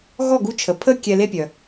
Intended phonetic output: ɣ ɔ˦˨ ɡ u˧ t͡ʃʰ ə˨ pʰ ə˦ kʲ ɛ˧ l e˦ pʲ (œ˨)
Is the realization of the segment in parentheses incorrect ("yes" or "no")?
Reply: no